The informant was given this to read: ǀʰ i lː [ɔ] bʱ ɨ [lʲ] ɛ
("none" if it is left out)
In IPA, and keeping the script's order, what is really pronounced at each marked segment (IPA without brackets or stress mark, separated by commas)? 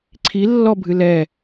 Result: ɔ, l